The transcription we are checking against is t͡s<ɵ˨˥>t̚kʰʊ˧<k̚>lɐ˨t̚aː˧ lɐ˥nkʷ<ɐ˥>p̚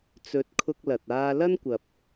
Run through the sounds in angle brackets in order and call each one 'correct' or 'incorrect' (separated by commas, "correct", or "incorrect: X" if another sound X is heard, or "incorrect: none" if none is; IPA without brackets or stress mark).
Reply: correct, correct, incorrect: ɐ˨